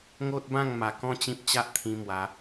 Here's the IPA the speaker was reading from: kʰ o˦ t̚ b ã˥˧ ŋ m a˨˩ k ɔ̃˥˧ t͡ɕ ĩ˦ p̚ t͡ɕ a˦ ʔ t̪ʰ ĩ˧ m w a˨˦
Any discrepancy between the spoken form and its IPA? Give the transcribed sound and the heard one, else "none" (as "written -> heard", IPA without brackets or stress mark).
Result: kʰ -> ŋ